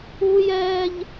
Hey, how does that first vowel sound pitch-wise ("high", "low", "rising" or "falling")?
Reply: high